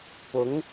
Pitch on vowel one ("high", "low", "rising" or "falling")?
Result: rising